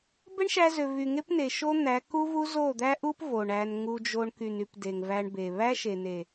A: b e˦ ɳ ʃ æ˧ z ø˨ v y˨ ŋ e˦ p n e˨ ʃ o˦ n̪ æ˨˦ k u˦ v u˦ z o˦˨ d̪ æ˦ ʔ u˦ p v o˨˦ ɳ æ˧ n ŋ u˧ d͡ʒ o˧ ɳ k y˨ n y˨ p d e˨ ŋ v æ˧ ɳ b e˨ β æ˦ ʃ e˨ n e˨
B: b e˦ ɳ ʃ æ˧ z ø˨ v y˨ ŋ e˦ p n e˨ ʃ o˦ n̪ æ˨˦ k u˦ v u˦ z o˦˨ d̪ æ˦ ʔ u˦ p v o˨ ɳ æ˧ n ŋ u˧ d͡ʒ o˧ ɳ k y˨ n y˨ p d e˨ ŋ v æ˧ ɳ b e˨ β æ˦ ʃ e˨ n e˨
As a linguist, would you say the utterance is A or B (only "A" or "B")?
B